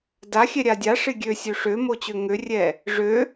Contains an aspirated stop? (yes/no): no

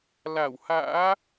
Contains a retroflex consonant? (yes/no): no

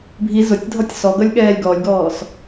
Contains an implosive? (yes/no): yes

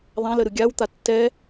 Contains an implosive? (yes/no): no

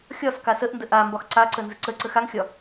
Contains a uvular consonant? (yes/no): no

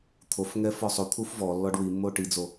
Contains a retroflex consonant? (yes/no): yes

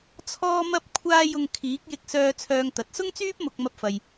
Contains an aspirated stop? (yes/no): yes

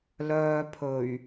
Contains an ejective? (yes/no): no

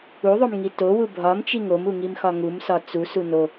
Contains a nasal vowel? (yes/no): no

